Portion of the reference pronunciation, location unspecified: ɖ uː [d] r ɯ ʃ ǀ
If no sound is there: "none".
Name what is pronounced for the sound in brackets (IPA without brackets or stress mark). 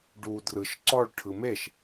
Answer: d